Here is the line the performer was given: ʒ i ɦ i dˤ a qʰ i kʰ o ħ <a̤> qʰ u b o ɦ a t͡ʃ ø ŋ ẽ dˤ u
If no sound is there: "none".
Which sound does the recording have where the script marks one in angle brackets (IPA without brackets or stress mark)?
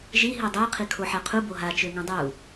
a